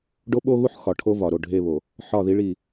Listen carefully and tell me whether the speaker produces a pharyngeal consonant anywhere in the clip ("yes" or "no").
yes